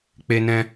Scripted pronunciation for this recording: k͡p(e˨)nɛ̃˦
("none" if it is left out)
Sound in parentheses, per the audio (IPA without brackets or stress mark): e˦